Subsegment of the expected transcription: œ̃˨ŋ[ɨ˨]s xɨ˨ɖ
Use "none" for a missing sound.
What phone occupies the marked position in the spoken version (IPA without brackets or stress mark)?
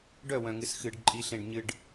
ɨ˨